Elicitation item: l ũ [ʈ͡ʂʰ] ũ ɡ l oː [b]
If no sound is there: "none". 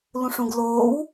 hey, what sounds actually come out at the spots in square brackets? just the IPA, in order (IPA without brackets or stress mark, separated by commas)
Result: ʂ, w